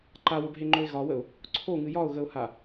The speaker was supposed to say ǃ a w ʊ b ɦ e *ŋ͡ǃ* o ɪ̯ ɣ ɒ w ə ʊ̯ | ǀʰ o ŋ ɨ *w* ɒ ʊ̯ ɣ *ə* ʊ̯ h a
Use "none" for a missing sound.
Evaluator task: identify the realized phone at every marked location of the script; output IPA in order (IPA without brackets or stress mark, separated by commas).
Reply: ŋ͡ǃ, j, ə